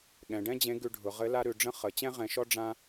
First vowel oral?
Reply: no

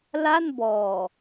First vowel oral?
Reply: yes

